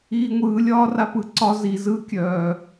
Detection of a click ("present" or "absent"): present